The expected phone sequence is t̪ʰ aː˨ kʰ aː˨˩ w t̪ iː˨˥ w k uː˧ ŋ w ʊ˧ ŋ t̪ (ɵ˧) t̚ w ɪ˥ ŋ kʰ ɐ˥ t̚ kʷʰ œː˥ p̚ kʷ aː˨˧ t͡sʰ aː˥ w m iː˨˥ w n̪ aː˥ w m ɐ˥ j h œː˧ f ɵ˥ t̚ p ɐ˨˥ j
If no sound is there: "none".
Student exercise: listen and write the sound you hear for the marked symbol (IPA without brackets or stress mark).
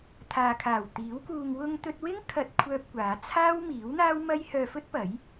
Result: ɵ˧